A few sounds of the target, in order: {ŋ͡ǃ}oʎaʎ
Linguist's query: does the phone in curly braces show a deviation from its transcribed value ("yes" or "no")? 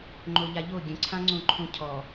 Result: no